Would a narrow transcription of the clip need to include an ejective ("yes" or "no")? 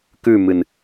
no